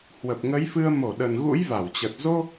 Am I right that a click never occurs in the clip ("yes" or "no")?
yes